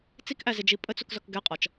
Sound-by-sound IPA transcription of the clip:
t͡s i k ʔ æ z ɪ d͡ʒ i pʼ ə t͡s u k z ɔ k ɡ ɛ qʼ ɒ t͡ʃ

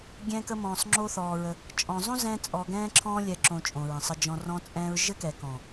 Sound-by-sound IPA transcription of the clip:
ɡʲ ɛ̃˦ k ə˦ m ɔ̃ː˧ sˤ ŋ͡ǁ o˦ θ ɔː˧ ɹ ə˧ | t͡ʃʼ ɔ̃˨ zˤ õ˦ z ɛ̃˦ t͡sʼ ɔ˧ ɡ ɛ̃ː˦ ǁʰ ɔ̃ː˦ lʲ ɛ˧ ǁ õ˧ t͡ʃʼ õ˨ ɹ ə̃˨ sˤ ə˧ d͡ʒ ɔ̃˧ r ɔ̃˦ t͡sʼ ɛ̃ː˦ ɹ ʒ ɘ˦ k ɛ˨ k ɔ̃˨

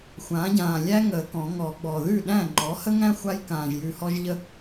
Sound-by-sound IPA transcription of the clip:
xʷ ãː˩˥ ɟ ãː˨˩ lʲ æ˦ ŋ əː˨˩˦ k ɔ̃˨˩˦ ŋ ɔ˨˩˦ ɡ͡b ɔ˨˩ ð ʉ˥˩ ɗ æ̃˥˩ ŋ͡ǃ ɔ˩˥ h ə˦ ŋ æ̃˦ xʷ a˦ j k ãː˨˩ ʒ j ʉ˨˩ h ɔ˦ ʒ ʎ ə˦

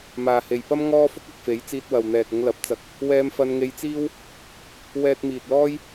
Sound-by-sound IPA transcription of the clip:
m aː˨ h e˨ j p ɐ˥ m ŋ ɔː˥ f ʊ˥ k̚ ɐ˨ k̚ f e˨˥ j t͡s iː˧ t̚ w ɐ˨ w n̪ ɛː˨ k̚ ʊ˧ ŋ l ɐ˨˥ p̚ t͡s ɐ˧ k̚ | w ɛː˧ m f ɐ˧ n ŋ e˧ j t͡s iː˥ w | w ɛː˧ t̚ m iː˨ t̚ l ɔː˥ j

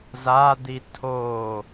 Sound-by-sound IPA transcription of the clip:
z a d̪ i tʰ o

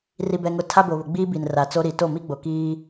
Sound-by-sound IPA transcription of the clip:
r i˨ b ɛ˨ ŋ ʊ˨ tʰ a˦ b o˨ β ʊ˨ ɡ͡b iː˦ b i˨ n r a˨ t͡s o˦ ɾ i˨ t o˦˨ m i˦ ɡ͡b o˨ k iː˦

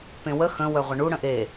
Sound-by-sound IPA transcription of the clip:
p ẽ w ə x ə̃ w œ ʁʷ ə ɳ u ɽ ə̃ ʔ e

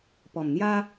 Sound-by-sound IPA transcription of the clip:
p ɔ˨˩ m n̪ j a˦

